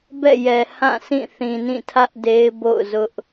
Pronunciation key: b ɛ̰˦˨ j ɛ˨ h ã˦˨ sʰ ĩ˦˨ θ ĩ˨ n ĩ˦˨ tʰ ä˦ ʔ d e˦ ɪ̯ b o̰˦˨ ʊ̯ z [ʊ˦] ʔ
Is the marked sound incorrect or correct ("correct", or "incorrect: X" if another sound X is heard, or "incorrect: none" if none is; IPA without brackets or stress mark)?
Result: correct